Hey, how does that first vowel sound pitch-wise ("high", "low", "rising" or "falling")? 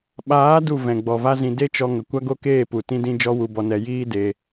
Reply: rising